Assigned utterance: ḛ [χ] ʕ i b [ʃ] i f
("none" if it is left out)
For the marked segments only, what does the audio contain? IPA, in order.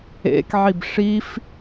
k, ʂ

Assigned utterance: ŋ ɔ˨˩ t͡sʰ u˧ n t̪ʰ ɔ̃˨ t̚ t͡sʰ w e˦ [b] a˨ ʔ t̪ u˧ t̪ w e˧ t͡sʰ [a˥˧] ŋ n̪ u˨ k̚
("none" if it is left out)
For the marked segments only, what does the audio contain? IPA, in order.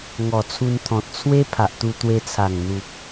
pʰ, a˨˩

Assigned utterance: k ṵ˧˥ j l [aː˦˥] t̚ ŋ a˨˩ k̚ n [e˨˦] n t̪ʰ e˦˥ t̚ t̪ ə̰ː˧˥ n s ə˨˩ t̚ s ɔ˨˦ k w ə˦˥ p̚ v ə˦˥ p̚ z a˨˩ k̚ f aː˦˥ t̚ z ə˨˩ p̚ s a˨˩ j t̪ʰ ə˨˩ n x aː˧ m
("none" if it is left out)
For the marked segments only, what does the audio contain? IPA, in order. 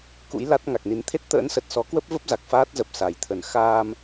a˦˥, i˨˦

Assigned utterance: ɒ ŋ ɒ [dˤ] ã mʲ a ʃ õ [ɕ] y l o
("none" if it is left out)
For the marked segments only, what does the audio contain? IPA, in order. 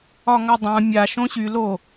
dˤ, ɕ

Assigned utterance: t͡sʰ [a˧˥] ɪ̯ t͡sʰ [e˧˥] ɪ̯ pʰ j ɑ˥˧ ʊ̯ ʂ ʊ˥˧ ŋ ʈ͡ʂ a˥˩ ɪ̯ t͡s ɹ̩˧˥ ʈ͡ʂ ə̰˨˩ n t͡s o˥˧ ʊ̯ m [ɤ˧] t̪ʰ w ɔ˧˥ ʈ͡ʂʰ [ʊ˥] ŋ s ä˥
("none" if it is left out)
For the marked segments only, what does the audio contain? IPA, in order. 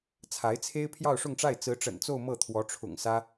a˧˥, e˥, ɤ˥˩, ʊ̰˨˩

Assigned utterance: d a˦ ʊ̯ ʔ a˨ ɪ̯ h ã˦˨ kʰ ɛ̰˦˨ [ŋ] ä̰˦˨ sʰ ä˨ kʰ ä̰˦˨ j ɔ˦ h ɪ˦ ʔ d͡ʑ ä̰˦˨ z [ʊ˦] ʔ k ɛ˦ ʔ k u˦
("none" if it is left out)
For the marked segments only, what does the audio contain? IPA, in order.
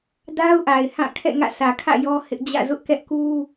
ŋ, ʊ˦

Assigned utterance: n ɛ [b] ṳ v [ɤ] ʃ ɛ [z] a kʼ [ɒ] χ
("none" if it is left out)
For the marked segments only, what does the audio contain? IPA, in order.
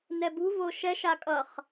b, o, ʃ, ʌ

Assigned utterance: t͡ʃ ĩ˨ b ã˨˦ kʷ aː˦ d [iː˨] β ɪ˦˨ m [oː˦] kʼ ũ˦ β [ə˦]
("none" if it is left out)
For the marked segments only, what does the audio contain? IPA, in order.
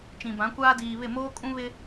iː˨, oː˦, ɪ˦

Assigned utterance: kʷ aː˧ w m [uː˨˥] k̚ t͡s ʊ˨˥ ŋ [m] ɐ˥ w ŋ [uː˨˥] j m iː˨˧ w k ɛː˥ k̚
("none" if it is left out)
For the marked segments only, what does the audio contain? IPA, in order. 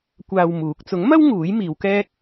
uː˨˥, m, uː˨˥

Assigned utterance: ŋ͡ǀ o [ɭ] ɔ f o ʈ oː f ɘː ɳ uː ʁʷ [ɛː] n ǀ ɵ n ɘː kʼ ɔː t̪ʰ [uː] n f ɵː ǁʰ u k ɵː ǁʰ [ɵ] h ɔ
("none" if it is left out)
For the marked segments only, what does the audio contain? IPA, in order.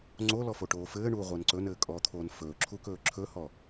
l, ɘː, oː, ɵ

